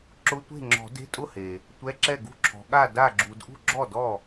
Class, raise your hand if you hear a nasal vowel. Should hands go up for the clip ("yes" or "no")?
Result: no